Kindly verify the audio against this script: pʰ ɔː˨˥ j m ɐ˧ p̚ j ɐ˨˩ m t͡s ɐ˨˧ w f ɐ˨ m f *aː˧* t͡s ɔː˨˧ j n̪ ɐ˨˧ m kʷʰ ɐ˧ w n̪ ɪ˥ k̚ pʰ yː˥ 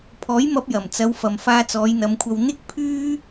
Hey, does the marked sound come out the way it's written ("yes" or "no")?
yes